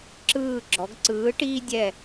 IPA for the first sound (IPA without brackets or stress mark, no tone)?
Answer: ǁ